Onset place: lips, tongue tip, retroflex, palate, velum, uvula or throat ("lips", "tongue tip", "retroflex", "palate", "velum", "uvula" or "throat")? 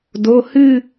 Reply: tongue tip